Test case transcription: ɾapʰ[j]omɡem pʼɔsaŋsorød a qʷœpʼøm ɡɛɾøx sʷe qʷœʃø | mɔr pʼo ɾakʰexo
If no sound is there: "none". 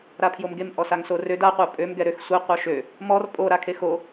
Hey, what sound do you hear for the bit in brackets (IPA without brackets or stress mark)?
j